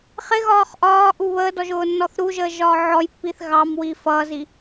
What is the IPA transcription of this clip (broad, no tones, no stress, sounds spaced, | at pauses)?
χ ɪ ɣ ɒː χ ʔ ɒː ʔ u β əː d ɔ ʒ ʊː nː ɔ θ ɾ u ʒ əː ʒ ɒː ʕ ɔ j pː i θ ɣ ɑ m w i f ʌ z i